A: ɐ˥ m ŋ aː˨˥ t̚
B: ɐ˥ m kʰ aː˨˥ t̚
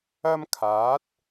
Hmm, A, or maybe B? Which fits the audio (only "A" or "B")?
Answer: B